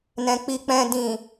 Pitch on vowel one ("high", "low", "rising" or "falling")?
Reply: low